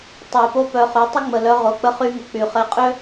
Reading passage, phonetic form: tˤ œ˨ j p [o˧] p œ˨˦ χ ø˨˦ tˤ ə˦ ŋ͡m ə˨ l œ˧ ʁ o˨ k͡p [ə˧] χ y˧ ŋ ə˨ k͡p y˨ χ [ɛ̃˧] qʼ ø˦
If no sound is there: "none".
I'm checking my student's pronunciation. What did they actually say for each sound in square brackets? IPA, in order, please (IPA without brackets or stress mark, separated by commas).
o˦, ə˧, ɛ˧